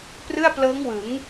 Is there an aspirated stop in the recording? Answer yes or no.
no